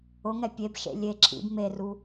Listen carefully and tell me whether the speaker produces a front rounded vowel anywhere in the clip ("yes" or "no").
no